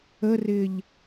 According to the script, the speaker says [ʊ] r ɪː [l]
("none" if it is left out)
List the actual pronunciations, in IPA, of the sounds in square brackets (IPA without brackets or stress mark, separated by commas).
ə, ʎ